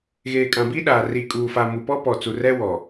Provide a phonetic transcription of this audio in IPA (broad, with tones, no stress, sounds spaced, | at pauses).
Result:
ɣ eː˨ kʼ ã˨ b i˦ ɗ aː˨ r i˨ kʼ uː˨ f a˨ m u˨ p ɔ˦ p ɔ˨ t͡s u˨ r ɛ˦ w ɔ˨